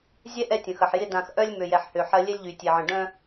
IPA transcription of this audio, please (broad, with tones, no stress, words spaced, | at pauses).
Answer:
zʲɛ˦ ʔɛ˦tʲə̃˨xɐ˨ħjɪ˦ dã˨xʔœ˦lʲ mø˨jɛ˨ħhø˨ ħɐ˦ lʲɛ˦lʲʎy˨tʲe˨ʕə̃˨ ɖœ̃˦